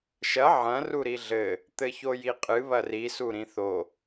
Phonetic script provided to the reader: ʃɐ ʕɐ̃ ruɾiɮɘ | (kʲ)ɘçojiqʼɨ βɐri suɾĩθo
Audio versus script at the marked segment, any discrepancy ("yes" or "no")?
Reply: yes